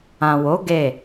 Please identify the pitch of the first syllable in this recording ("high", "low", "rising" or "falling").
low